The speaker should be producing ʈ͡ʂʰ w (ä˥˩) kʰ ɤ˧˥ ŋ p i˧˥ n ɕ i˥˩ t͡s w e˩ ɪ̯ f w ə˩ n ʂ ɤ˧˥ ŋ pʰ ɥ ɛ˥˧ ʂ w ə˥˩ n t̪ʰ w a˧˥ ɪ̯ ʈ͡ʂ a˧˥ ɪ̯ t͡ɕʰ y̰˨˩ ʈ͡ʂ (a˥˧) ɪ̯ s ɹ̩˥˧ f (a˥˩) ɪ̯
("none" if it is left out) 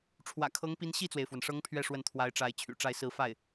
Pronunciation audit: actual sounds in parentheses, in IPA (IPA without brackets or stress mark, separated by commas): ä̰˨˩, a˥˧, a˥˩